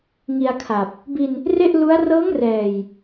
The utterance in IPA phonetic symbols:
ŋ i˧ a̯ kʰ a˨˩ p̚ | b i˧ n | r e˥˩ ʔ l u˦˥ a̯ r ɤː˦˥ ŋ r ɛː˨˩ j

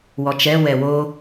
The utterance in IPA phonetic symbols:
w ɔ t͡ʃ ɛ w ɛ w o

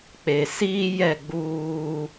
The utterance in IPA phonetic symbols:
k͡p e˨ s iː˦ j ɛ˦˨ ɡ͡b uː˦

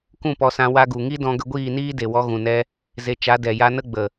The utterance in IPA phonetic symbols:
k ũ˦˨ p ɔ˧ s ã˧ w a˧ ɡ u˨ ŋ i˦ d ɔ̃˧ ɡ ə˧ ɡʷ iː˦˨ n iː˦ d e˨ w ɔ˧ ɣ ũ˨ n ɛ˧ | z e˧ t͡ʃ a˨˦ d ɛ˨ j a˧ n ə˦ ɡ͡b ə˨

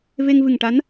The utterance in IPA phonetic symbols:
v e˧ ŋ v ɨ˨˩ ŋ ʈ a˧˥ n

